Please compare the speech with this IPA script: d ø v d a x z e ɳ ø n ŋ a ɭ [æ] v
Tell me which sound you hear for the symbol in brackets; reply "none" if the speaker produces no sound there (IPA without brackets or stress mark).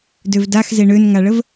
ə